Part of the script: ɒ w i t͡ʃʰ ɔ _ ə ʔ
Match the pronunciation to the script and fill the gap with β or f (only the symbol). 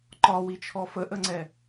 f